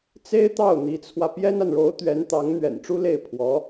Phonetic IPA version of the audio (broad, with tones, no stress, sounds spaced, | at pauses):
t͡s e˥ ɪ̯ t̪ ɑ˥˩ ʊ̯ n̪ i˧˥ t͡sʰ w ä˧ p j ɛ˥ n a˨ n ɻ o˧˥ ʊ̯ t̪ ɥ ɛ˧˥ n t̪ ɑ˧˥ ŋ n̪ ɥ ɛ̰˨˩ n ʈ͡ʂ u˥ l e˥˩ ɪ̯ pʰ w ɔ˧˥